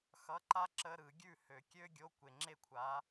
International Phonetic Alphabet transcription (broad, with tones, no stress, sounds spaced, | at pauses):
x ʌ˧˥˧ ǃ a˥ ǁ ə˧˥˧ ɾ ɯ˨˩˦ ɡʲ ʉ˥˨ h ø˨ kʲ ø˥ ɡʲ o˧˥˧ kʷ e˨ ŋ͡ǁ e˥˨ kʷʰ a˨˥